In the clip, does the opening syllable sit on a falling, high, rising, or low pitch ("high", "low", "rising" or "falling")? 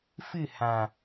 falling